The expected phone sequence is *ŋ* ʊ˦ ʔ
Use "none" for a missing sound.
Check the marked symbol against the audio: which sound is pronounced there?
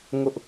ŋ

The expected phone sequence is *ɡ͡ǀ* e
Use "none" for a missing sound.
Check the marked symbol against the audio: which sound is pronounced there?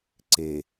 ǀ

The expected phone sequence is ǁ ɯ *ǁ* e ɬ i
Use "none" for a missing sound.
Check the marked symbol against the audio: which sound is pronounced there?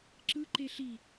ǃ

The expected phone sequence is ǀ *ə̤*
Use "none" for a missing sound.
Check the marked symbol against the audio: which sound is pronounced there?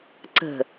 ə̤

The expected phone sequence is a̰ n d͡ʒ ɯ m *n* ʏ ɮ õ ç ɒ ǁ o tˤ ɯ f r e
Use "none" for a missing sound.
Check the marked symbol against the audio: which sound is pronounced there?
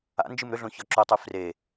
ɾ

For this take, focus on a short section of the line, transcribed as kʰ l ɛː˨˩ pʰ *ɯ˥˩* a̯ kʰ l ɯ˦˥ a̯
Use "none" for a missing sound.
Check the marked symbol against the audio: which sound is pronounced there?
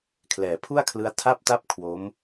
u˥˩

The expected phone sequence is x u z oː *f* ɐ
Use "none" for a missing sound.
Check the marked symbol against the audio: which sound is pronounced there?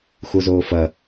f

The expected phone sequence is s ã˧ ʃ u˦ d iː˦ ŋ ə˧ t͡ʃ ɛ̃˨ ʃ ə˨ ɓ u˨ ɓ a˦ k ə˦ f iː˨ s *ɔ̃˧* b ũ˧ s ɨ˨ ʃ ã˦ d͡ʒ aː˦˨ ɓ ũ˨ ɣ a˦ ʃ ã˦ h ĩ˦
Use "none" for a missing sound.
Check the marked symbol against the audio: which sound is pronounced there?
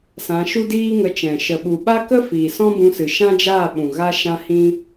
ɔ̃˦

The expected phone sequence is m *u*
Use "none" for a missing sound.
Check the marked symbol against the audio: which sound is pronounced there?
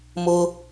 ʊ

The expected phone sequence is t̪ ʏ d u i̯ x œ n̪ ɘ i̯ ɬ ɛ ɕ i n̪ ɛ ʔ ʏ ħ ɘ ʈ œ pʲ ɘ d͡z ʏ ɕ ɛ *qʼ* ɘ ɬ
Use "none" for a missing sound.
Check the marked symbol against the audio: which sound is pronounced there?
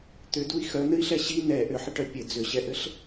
ʔ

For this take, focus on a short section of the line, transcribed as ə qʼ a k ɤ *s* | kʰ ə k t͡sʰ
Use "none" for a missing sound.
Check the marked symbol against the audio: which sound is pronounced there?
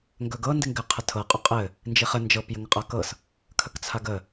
s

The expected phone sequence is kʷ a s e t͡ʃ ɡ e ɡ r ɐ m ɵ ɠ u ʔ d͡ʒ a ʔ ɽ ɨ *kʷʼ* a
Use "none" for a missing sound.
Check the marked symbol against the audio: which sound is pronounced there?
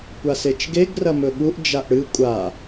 kʷʼ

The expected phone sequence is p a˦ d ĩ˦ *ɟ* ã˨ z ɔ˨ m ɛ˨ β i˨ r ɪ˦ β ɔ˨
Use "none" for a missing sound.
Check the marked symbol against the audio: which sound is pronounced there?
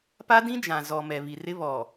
d͡ʒ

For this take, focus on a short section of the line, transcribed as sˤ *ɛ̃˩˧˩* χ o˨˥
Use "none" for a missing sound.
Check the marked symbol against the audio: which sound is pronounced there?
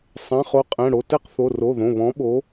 ɛ̃˩˧˩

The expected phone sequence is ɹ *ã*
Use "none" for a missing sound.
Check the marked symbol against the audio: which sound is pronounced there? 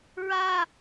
a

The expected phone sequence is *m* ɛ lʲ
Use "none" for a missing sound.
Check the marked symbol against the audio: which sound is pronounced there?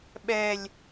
ɓ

